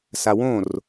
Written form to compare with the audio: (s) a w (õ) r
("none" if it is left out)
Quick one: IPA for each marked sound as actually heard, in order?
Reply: s, õ

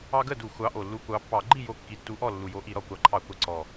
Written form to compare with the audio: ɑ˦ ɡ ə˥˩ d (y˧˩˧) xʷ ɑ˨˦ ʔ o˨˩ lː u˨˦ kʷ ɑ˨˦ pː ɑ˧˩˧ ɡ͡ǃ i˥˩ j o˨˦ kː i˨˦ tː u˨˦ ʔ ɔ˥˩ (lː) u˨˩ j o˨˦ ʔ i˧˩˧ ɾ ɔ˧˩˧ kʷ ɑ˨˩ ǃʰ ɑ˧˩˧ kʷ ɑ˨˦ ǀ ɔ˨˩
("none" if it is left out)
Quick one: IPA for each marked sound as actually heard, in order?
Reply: u˧˩˧, lː

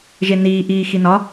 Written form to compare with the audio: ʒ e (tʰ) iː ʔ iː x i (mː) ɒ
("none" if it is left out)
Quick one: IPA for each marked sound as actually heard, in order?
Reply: n, n

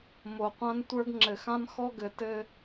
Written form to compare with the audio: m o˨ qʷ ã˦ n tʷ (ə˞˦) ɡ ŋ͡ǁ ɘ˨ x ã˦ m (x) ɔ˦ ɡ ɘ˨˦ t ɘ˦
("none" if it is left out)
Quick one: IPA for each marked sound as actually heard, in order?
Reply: ə˞˦, x

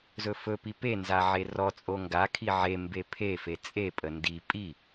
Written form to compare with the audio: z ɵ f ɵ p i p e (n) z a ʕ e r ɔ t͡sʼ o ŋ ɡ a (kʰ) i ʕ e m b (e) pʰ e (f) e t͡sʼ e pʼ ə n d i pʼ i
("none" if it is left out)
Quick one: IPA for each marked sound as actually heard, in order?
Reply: n, kʰ, e, f

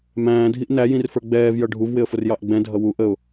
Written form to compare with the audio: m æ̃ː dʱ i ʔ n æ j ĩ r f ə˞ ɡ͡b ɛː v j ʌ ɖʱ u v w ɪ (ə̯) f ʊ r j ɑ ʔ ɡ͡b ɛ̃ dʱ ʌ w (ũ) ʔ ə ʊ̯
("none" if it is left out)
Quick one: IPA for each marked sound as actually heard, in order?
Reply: ə̯, u

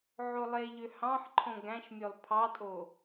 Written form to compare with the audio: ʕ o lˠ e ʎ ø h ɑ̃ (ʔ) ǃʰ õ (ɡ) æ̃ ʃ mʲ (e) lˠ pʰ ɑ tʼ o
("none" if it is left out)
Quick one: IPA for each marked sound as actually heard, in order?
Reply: ħ, ɡ, ø

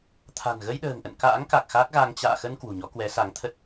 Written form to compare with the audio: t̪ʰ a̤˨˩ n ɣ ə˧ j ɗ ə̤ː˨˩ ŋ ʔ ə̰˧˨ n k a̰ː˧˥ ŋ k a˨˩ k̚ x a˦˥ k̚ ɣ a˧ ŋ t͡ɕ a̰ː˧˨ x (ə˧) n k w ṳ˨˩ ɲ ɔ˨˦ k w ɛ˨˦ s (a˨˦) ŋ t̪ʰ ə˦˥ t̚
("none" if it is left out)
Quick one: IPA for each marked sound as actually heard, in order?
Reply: ə˧, a˨˦

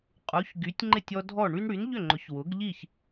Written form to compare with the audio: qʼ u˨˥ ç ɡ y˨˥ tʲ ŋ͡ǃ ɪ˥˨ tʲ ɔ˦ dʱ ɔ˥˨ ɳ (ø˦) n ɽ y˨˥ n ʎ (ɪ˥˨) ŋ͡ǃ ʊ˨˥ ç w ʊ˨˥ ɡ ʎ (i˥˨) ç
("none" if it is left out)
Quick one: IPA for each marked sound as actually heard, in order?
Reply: y˦, ʏ˥˨, i˥˨

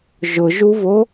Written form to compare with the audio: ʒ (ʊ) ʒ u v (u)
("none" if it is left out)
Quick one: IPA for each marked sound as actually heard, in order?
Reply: ʊ, o

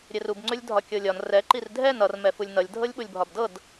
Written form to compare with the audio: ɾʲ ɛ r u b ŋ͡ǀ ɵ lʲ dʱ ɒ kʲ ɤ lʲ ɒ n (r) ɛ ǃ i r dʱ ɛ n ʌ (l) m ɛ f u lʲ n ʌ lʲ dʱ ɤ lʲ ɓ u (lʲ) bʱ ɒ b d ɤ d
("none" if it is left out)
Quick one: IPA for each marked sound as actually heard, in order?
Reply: r, r, lʲ

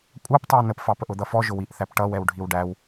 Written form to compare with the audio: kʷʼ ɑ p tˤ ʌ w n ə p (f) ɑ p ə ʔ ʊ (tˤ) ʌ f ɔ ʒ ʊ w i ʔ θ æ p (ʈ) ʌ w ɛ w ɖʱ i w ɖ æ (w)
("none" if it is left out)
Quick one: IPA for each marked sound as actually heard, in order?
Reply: f, d̪, ʈ, w

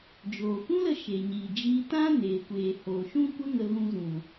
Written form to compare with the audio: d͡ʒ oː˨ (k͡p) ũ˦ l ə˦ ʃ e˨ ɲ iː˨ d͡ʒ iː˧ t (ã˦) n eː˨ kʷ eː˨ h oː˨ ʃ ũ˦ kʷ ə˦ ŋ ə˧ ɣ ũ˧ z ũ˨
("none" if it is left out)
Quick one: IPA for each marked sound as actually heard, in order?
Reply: kʷ, ã˦

